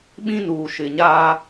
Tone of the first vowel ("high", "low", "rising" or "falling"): high